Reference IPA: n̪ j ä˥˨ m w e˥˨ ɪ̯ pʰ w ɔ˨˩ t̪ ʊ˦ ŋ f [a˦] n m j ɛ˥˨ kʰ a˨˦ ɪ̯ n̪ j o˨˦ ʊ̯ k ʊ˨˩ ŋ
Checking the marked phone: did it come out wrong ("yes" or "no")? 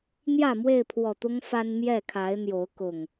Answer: no